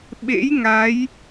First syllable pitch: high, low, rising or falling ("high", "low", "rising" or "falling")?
rising